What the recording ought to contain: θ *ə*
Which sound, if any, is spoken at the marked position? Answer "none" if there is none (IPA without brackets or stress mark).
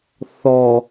ɔ